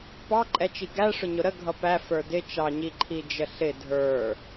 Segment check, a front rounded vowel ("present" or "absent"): absent